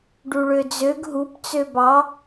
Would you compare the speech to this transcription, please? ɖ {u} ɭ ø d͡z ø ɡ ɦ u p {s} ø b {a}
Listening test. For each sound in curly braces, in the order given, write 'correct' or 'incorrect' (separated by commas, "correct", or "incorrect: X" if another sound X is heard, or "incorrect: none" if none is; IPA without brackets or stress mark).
correct, incorrect: t͡s, incorrect: ɑ